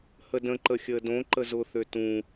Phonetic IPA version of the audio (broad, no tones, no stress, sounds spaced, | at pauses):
h ə d ə̃ ǃ ə xʲ əː d õ ǃ ə z ʊ θ ø t ũ